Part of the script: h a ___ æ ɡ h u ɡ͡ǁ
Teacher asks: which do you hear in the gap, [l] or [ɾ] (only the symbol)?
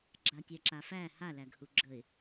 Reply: l